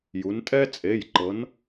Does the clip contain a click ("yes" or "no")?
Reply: yes